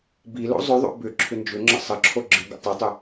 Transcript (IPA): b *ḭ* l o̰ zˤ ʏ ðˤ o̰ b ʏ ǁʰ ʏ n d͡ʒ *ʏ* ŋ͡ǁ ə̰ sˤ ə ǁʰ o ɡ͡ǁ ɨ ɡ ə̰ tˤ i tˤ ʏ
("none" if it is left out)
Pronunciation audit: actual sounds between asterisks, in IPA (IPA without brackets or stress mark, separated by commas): i, ʏ